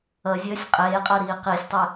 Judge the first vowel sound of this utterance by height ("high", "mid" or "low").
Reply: mid